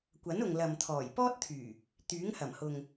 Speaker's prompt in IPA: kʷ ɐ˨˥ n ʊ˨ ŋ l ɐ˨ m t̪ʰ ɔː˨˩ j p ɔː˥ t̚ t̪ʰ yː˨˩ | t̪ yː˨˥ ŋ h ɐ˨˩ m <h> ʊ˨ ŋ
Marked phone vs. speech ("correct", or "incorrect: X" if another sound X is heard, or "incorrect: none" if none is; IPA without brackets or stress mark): correct